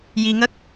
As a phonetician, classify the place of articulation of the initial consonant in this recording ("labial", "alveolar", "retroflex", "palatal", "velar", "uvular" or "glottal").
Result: palatal